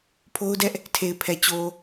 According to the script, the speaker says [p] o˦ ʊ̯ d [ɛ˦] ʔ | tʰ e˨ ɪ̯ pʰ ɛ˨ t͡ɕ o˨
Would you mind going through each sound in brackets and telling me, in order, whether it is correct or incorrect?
incorrect, correct

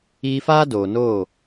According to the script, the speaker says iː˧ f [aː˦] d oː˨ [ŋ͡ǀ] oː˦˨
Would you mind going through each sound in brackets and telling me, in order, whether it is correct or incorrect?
correct, incorrect

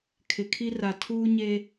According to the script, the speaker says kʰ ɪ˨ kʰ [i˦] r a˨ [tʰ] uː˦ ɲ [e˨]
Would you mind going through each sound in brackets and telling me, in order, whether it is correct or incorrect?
correct, correct, incorrect

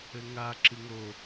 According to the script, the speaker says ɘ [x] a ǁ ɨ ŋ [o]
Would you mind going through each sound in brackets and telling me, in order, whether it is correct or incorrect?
incorrect, correct

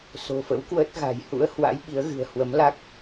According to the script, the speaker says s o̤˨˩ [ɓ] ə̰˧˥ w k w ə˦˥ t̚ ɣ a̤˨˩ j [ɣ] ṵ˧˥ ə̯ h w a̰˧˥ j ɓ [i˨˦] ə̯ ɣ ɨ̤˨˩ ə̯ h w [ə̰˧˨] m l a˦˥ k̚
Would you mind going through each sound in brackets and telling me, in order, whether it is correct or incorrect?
incorrect, incorrect, correct, incorrect

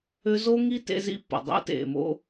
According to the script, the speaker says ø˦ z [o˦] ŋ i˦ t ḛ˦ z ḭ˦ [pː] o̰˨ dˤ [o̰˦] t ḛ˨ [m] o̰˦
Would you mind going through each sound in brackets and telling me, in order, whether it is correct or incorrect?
correct, correct, correct, correct

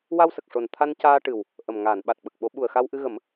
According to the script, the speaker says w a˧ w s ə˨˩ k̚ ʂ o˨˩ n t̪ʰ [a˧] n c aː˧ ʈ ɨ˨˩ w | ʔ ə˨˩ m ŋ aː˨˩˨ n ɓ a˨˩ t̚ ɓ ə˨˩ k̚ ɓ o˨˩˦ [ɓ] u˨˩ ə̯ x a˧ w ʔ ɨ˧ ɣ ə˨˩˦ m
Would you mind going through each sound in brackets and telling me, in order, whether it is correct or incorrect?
correct, correct

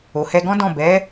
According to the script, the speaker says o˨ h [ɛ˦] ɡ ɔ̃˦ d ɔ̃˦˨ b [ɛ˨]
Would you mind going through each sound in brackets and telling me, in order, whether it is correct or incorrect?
incorrect, incorrect

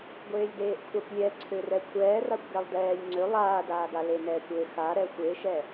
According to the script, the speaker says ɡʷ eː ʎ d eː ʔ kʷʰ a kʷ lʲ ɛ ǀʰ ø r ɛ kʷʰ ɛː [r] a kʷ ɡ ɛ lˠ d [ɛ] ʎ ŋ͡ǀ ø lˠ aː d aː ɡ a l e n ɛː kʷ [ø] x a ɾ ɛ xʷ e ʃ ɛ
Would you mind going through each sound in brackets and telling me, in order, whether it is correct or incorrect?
correct, incorrect, correct

